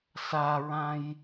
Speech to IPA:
s a ɹ ã j

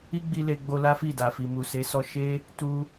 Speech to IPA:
i˦ ɡ͡b i˧ l e˧ ɡ͡b o˧ l a˦ f i˦˨ d a˨ f i˨ m u˨ s e˨˦ s ɔ˧ ʃ e˦ | t u˦

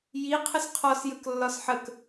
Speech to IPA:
j i qʰ ə s qʰ ɔ s j ə k lː ɒ s ħ ə k

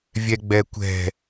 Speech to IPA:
vʲ ɛ ɡ͡b ɛ kʷ ɛ̤

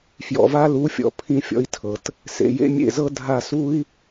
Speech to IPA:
f j ɔ̰˨ v a˦ l u˨˦ fʲ ɔ̰˨ pʰ ĩ˦ fʲ ɔ̰˦ i̯ tʰ ɤ˨ t | s ḛ˨ j ḛ˦ mʲ ḛ˦˨ z ɤ˦ dʱ a˦˨ s u˦ i̯

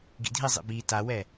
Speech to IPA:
ɡ ḭ dʱ i zˤ ḭ b i t a w ɛ

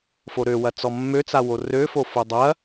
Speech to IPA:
f o ɾ ø w ɐ t͡s ɔ mː ø t͡s a w o r ø f o f o dˤ ɐ

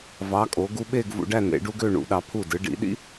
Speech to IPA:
v ɑ˩˧ kʼ o˩˧ ɡ u˧ ɓ e˥˧ ɡ v ṵ˧ ɖ æ˥˧ n ḛ˩˧ ɖ u˥ ɡ ø˥˧ ɳ ṵ˩˧ ɗ ɑ˩˧ pʰ u˧˩ d ɯ˩˧ ɖ ḭ˩˧ ɗ ḭ˥

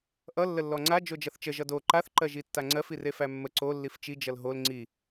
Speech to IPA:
ʔ ʌ lː ə lː ɔ ŋ͡ǀ a d͡ʒ o d͡ʒ ʌ θ t͡ʃ ə ʒ ʌ d o ǃ a θ ǃ ɜ ʒ i tː a ŋ͡ǀ ɜ f i r e f æ mː ə ǀ o lː i f t͡ʃ i d͡ʒ ʌ l ɦ o l ŋ͡ǀ i

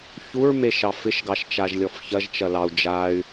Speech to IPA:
ç u ɹ m e ʃ ɑ f ɪ ʃ ɡ ɑ ʃ t͡ʃ a ʒ lʲ ɔ f ç ɐ ʒ t͡ʃ ɐ l ɑ u̯ d͡ʒ a y̯

